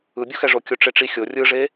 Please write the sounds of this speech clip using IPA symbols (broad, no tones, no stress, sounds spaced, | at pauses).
ɯ bʲ o x ɛ ʐ o kʲ o ʈ͡ʂ e ʈ͡ʂ i xʲ o rʲ ɯ ʐ e